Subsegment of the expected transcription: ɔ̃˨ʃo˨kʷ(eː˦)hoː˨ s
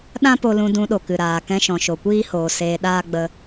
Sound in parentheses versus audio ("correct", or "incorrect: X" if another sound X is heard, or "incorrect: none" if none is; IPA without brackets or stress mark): incorrect: iː˦